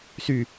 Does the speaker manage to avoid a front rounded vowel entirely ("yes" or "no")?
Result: no